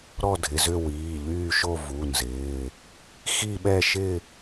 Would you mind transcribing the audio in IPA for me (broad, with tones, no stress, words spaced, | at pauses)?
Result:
ɾɔ˥˧dʱɪ˩˧˩zʏ˥˧ wiː˩˧˩ʎyː˥˧ʃo˥˧ vu˩˧˩nzɪː˩˧˩ | xi˥˧ɓɛ˥˧ ʃɪ˥˧